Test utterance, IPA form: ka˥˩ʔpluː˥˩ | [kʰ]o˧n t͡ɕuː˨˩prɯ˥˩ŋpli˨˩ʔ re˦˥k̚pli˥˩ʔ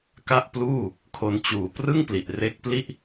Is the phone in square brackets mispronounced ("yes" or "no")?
no